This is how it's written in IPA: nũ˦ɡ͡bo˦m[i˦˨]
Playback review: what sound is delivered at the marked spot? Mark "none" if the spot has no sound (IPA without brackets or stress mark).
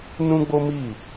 i˦˨